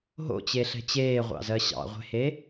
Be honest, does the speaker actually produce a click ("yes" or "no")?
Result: no